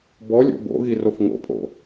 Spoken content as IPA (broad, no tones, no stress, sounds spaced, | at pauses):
b ɔ lʲ o̰ b o̰ ɣ i r o f ŋ o̰ pʼ o̰